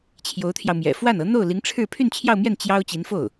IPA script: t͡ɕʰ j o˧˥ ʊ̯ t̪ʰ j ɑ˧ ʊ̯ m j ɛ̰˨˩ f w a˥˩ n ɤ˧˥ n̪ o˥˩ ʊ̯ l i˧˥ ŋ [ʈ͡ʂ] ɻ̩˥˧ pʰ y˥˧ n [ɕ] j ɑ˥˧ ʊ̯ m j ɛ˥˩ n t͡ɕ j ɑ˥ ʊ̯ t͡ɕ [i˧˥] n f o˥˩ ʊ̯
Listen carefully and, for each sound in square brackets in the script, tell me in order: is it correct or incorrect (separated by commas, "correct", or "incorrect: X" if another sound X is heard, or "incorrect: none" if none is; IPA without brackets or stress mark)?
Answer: incorrect: ʈ͡ʂʰ, incorrect: t͡ɕʰ, correct